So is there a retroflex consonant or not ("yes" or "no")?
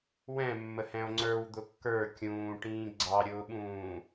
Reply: yes